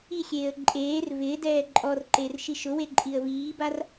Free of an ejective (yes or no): no